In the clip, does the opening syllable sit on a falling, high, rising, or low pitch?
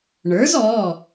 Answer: rising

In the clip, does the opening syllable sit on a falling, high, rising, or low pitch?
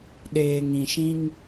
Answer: low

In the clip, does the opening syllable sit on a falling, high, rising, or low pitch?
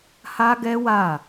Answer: high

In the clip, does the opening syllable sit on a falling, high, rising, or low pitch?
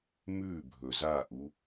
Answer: falling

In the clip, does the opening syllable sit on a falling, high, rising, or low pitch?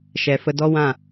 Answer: low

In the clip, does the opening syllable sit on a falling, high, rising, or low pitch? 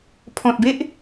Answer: low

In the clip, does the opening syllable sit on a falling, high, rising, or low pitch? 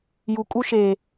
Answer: low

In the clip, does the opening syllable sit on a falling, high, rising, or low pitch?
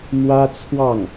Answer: high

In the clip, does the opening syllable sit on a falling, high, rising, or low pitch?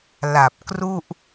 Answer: low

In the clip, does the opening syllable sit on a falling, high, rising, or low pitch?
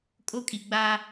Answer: high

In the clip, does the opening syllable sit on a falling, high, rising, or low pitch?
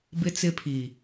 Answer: high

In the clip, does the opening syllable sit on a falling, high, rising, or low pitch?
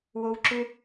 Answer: high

